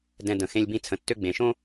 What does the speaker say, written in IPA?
dɛ̃˧də̃˩ xẽ˧lʲbĩ˧ t͡sʰə̃˩ tːø˥ ɡ͡bẽ˩ʃõ˥

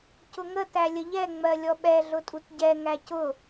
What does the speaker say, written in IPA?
cʊŋətæ lʲəʎɛŋ͡mɜ lʲɔɓɛɮʊtʼut ɟɛ ŋæcʊ

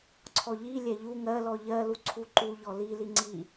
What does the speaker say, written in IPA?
ǀʰɔʎi lʲɛʎu ŋɜ lɔʎɜ luǀʰuǃu ʎɔli liŋ͡ǀi

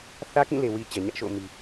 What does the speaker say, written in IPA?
θä˦kĩ˦˨le˨ wi˨ t͡ɕɛ˨ɲä˦ʔʃo̰˦˨ʊ̯mi˨

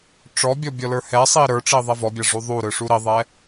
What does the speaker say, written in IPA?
ʈ͡ʂɔbʲɔ bʲɔlə˞hɛsˤi ɾə˞ʈ͡ʂi ðˤɛvɔbʲa ʐuðˤuɾɯ ʂuɾiðˤɛ

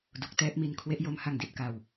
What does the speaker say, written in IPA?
du˨˩k̚tɛː˥˩p̚mi˧n kʰwe˦˥ʔjo˦˥mha˧ŋdi˥˩t̚ ka˧w

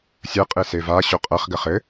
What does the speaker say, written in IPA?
sʲɐ qʼesevaɕo qʼɐχɡɐχ ɘ

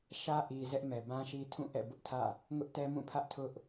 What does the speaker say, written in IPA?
ʃä˦ʔi˨ zɛ˦ʔmɛ˨bã˦ʃi˦ tʰũ˦˨ʔɛ̰˦˨ bʊ˦ʔtʰä̰˦˨ | ŋʊ˦ʔtɛ˦mũ˦˨pʰä˦ʔ tʰʊ˦ʔ

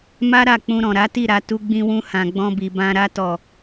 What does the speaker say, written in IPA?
ma˦ɾa˦˨k͡pũ˧ ɾɔ̃˨ɾa˨˦ti˦˨ ɾa˧ tu˧ɡ͡bĩ˧wũ˧hã˨ ɡ͡bɔ̃˧bi˨ bã˧ ɾa˧tɔ˨

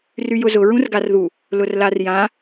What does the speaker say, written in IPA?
ryjʊzʊ ɹũrɡarðu | lʊrlarjã

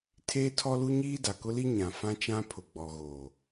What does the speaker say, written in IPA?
tʰeː˦tʰɔ˦lu˦ɲiː˦ da˨kʊ˦li˦ ɲã˨ fã˦t͡ʃã˦ pʰʊ˨ɡ͡bɔ˨ɣoː˨

